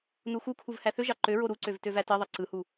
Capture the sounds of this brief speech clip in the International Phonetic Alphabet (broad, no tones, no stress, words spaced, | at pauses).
nuxukʰuv hæθøʒɑ ǃøɹo ɾuǀøv tøvætiðˤi ǀɯhu